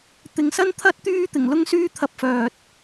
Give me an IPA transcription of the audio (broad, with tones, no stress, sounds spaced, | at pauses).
t̪ ɪ˨ ŋ s ɐ˥ n t̪ʰ ɐ˥ t̚ t̪ yː˥ t̪ ɪ˨˩ ŋ l ʊ˥ ŋ s yː˥ t̪ʰ ɐ˧ p̚ f œː˨ t̚